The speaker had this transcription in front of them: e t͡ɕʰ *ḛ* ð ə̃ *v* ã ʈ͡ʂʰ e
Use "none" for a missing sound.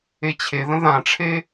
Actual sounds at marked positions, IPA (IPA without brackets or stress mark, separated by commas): e, ð